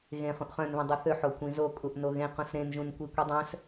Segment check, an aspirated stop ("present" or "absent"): absent